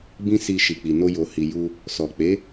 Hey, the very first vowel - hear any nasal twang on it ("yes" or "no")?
yes